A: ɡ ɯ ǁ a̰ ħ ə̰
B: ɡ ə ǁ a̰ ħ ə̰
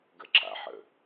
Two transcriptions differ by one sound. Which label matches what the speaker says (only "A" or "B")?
B